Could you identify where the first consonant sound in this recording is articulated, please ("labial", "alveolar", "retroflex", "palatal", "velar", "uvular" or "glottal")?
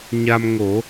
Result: palatal